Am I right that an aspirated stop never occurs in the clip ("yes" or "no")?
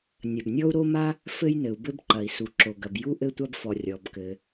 yes